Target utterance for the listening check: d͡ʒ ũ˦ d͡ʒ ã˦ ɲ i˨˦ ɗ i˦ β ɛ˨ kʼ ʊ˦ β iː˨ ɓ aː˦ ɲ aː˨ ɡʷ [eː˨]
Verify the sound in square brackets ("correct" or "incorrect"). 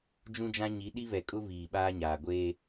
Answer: incorrect